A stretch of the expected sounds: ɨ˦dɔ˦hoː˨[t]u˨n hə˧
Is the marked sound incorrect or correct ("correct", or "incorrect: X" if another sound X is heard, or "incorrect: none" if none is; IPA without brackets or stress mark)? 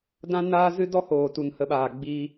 correct